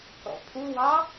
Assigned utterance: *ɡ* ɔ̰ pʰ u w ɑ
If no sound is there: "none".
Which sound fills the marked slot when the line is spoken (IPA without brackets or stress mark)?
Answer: k